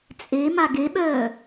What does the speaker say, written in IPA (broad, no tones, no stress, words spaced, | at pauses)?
t͡sʼe maɡeɓœː